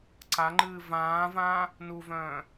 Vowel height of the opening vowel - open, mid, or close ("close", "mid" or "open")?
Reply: open